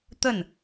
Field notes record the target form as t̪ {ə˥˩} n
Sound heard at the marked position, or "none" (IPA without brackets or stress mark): ə˥˩